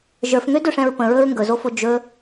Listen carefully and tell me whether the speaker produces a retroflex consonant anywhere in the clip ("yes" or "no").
yes